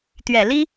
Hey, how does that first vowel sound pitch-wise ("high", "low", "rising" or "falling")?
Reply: low